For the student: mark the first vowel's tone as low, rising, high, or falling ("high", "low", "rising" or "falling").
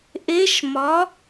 rising